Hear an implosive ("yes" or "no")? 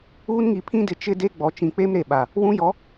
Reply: yes